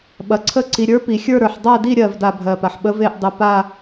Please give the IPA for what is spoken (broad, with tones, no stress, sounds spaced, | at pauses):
ɓ ɐ˨ ǀʰ ə˦˨ ǀ i˨ ɾʲ ə˞˧˥ p i˨ xʲ ə˞˦˨ ɾ ə˞˨ ħ dˤ a˦˨ d i˦˨ ɾʲ ɜ˦˨ v d a˦˨ bʱ ɜ˨ p a˨ ħ ɓ ə˧˥ v e˦˨ ʔ dˤ ə˨ p a˦˨